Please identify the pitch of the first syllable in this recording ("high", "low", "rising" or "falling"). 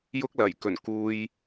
high